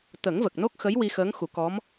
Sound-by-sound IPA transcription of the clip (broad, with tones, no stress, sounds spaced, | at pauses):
t̪ ə˨˩˦ ŋ v ə˨˩ k̚ n o˦˥ k̚ x ə˧˥ j w i˧ x əː˧˥ ŋ x u˨˩˦ k ɔ˧˥ m